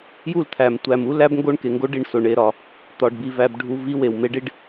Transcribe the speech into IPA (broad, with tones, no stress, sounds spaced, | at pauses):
j u˦˨ l t̪ʰ æ˨ m tʷ æ˨ m u˦ l æ˦ b ŋ ɡ o˦ ɳ k e˨ ŋ ɡ o˦ ɖ i˦˨ ɳ s o˨ ɳ e˨ ɾ ɒ˨ | t̪ ɒ˨ ɖ b i˨ v æ˦ b ɖʱ u˦ v i˦ w e˨ w m e˦ ɖ i˦ ɖ